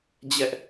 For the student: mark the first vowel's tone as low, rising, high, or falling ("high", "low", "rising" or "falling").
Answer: high